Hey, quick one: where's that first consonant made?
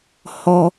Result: throat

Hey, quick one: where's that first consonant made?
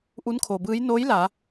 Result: throat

